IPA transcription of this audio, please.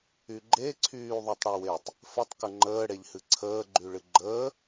y ɡ͡ǃ e ǀʰ yː ðˤ y tˤ ɽ o w e tˤ | f ə tˤ k ə ŋ͡ǃ əː ɽ e ʎ h ɨ ǀʰ əː ɡ͡ǃ y ɭ ɨ ɡ͡ǃ əː

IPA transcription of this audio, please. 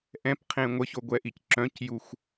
ʔ ɛ̃ p qʰ ẽ ŋʷ ə ç o ɡʷ ɛ ʔ i c ǁ œ̃ c j u xʷ

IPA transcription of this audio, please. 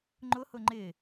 ŋ͡ǃ ʊ h ʊ ŋ͡ǃ ɪ

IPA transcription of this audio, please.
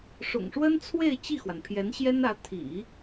ʂ ʊ̰˨˩ ŋ ʂ w ə˥ n t͡sʰ w e˥˧ ɪ̯ t͡ɕ i˥˩ x w a˩ n pʰ j ɛ˧˥ n ɕ j ɛ˥ n ä˧˥ t̪ʰ ḭ˨˩˦

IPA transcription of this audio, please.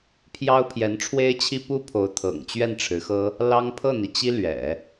pʰ j ɑ˥ ʊ̯ pʰ j ɛ˧˥ n ʈ͡ʂʰ w e˥ ɪ̯ t͡ɕʰ i˥ p u˥ pʰ o˧˥ ʊ̯ t̪ʰ ɤ̰˨˩ ŋ t͡ɕ ɥ ɛ˥˩ n ʈ͡ʂʰ ɻ̩˧˥ x ɤ˥ | l ɑ˥ ŋ pʰ ɤ˥˩ n̪ i˩ t͡ɕ i˥ l ɥ ɛ̰˨˩˦

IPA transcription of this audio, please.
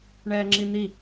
ɳ ɛː ŋ͡ǁ i n̪ i

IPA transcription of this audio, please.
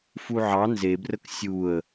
f u ʕ ɑ n z e b r ə k sʲ u ə̯

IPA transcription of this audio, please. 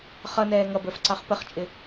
χ ʌ n ɛː ŋ ʌ b ə˞ f ǀ ɑ χ p ə χ t͡ʃʼ ɪ

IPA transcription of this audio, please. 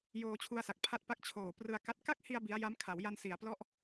j oː˧ t͡ɕʰ u˧ a̯ s a˨˩ k̚ pʰ a˥˩ t̚ p a˥˩ k̚ t͡ɕʰ oː˨˩ p r ɯ˧ a̯ k a˦˥ t̚ k a˥˩ k̚ h i˧ a̯ b i˦˥ a̯ j a˦˥ m kʰ a˩˦ w j a˧ n s i˩˦ a̯ p l ɔ˦˥ ʔ

